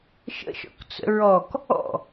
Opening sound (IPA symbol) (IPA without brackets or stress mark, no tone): ʃ